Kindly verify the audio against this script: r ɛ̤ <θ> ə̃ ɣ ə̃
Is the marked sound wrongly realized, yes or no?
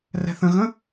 no